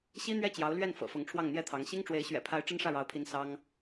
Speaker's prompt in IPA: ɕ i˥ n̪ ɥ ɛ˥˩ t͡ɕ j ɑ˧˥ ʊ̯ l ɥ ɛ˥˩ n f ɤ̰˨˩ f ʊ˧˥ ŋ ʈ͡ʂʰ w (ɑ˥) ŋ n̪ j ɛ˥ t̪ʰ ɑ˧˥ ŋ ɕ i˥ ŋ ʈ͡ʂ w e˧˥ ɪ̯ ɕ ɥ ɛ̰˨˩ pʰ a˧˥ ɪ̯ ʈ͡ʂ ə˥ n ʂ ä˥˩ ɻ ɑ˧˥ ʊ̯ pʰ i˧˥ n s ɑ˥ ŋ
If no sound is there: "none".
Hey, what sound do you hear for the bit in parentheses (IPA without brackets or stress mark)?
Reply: ɑ˥˩